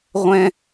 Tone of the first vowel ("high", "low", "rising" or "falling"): high